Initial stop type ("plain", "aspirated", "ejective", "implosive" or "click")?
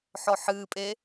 ejective